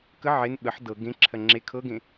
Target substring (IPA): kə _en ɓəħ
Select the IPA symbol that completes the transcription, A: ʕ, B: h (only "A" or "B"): A